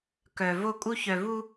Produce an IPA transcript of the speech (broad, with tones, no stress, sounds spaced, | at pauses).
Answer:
k œ˨ v o˦ kʼ u˦ ç œ˨ v u˦